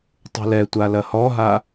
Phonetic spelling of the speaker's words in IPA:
tˤ ṳ l ɛ tʷ a l ɐ h ɔ ɦ a

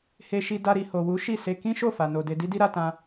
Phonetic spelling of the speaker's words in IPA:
h e˧ ʃ i˧ d a˧ ɾ i˨ h o˨ w u˨˦ ʃ i˦˨ s e˧ k ĩ˦ ʃ o˦˨ f a˨ n o˨ d e˧ d i˦ d i˦ ɾ a˦ t ã˦

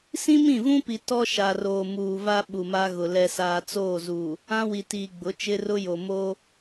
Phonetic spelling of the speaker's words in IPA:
s ĩ˦ m ĩ˦˨ v ũ˦ p i˨ t ɔ˦ ʃ a˨ r oː˨ m uː˨ v a˦ ɓ u˨ m a˦ ɣ ʊ˨ l ɛ˨ s aː˨ t͡s oː˦˨ z uː˨ | ã˦ w i˨ t iː˨ ɡ͡b ʊ˨˦ t͡ʃ ɪ˦ r ʊ˦ j o˨ m oː˦

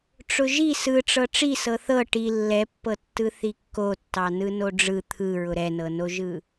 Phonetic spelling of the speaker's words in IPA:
ʈ͡ʂ ʊ ʒ i s ɯ ʈ͡ʂ ɤ ʈ͡ʂ i s ɤ θ ɤ ʈ i lː ɛ pː ɤ tː ɯ θ i kː o tː ɑ n ɯ n o ɖ͡ʐ ɯ t̪ʰ ɯ ɹ ʊ ɾ ɛ n ɤ n o ʒ ɯ

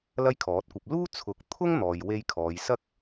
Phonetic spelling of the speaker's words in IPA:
l ɐ˥ j kʰ ɔː˨˥ t̚ kʷ ɐ˧ p̚ l uː˥ t͡sʰ ʊ˨˥ k̚ t̪ʰ ʊ˥ ŋ n̪ ɔː˨ j w e˧ j kʰ ɔː˨˧ j s ɐ˥ k̚

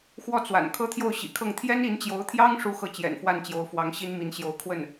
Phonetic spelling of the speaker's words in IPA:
x w ɔ˥˩ t͡s w a̰˨˩ n kʰ ɤ˥ t̪ʰ j o˥˩ ʊ̯ ɕ ḭ˨˩ kʰ ɤ˥˩ ŋ t̪ʰ j ɛ˥ n i˧˥ n t͡ɕ j o˧˥ ʊ̯ t̪ʰ j ɑ˥ ŋ ʂ u˥ x ɤ˥˩ t͡ɕ j ɛ̰˨˩ n f w a˥˩ n t͡ɕ j o˧˥ ʊ̯ f w ɑ˧˥ ŋ ɕ i˥ n m i˧˥ n ɕ j o˧˥ ʊ̯ kʰ w ə˥˩ n

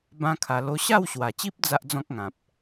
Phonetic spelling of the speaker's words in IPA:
b ã˦ kʰ a˧ l o˧ ɕ a˥˧ w ɕ w a˨˩ t͡ɕ i˦ p̚ d͡z a˦ ʔ d͡z ɔ̃˦ k̚ ŋ ã˨ p̚

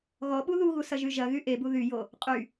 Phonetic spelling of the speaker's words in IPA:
ɣ ɔ ɓ u ð u ɣ u s ɐ ʒ y ʒ ɐ ɣ y ʔ e b u ð y j o | qʼ y

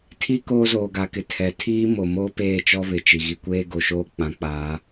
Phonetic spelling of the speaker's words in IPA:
tʰ i˦ k oː˦ z oː˨ ɡ a˨ k ɪ˨ tʰ ɛ˨ tʰ iː˦ m o˨ m oː˦ p eː˦˨ t͡ʃ ɔ˦ β ɪ˨ t͡ʃ i˨ ɣ i˨ kʷ eː˦ ɡ o˨ ʃ oː˦ k͡p ã˨˦ k͡p aː˨˦

